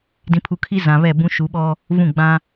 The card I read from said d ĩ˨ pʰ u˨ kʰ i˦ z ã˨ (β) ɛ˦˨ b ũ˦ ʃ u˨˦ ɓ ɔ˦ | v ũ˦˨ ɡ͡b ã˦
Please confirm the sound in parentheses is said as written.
yes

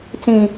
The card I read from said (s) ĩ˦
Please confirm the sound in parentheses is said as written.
no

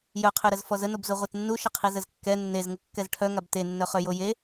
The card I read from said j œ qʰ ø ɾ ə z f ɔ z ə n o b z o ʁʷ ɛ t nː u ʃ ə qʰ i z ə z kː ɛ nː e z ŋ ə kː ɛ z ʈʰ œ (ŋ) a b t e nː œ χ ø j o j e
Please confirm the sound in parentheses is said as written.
yes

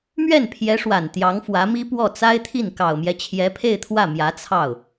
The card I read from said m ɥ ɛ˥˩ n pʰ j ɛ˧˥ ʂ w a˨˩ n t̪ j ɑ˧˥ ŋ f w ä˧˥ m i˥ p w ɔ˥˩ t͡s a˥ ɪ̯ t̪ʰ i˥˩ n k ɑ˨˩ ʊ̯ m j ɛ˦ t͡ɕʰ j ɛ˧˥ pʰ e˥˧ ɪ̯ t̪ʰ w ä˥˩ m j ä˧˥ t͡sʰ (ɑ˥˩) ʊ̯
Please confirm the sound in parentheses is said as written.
yes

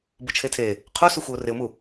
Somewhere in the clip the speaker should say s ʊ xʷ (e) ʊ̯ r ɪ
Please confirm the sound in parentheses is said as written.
yes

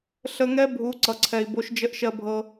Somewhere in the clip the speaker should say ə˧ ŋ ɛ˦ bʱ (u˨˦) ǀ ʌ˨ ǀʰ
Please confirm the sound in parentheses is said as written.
yes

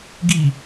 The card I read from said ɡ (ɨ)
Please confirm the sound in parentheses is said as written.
no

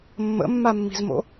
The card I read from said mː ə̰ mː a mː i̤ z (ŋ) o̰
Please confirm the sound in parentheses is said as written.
no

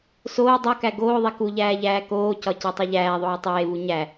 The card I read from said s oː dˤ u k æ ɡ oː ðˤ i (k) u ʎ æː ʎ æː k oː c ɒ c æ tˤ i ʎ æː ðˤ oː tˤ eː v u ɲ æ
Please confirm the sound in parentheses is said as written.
yes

